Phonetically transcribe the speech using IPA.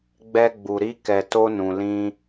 ɡ͡b ɛ˧ ɡ͡b u˨ ɾ i˧ k ɛ˨ t o˧ n ũ˨ l ĩ˧

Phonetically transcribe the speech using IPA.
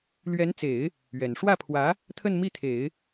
l ɥ ɛ˧˥ n t͡s e˨˩˦ ɪ̯ | ɥ ɛ˨˩ n ʂ w ä˥˩ pʰ w ä˧˥ | t̪ʰ ə˥˧ n m i˥˩ t̪ʰ e˨˩˦ ɪ̯

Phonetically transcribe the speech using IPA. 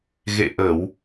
ɣ ḛ˧˨ ʔ ə˧˩˨ w

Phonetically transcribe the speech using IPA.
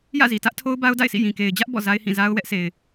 j ä̰˦˨ z i˨ t ä˦ ʔ tʰ o˦ ʊ̯ b a˦ ʊ̯ d a̰˦˨ ɪ̯ sʰ ḭ˦˨ j ĩ˨ k e˨ ɪ̯ d͡ʑ ä˦ ʔ b ɔ̰˦˨ z a˦ ɪ̯ h ĩ˦˨ z a˦ ʊ̯ w ɛ˦ ʔ s e˨ ɪ̯

